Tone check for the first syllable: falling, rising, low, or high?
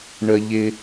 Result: high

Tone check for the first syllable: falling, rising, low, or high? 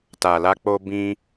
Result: low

